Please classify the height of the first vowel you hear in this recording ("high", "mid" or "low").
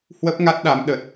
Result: mid